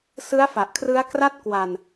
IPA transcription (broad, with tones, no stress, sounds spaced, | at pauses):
s ɯ˦˥ a̯ f a˨˩ ʔ kʰ r ɯ˦˥ a̯ k r a˥˩ t̚ k w a˧ n